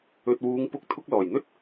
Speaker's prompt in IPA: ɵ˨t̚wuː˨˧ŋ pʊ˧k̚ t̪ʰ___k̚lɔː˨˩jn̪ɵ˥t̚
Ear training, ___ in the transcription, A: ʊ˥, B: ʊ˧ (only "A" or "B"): B